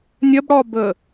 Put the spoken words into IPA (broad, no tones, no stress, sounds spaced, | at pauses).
nʲ ɐ b ɽ ɒ b ə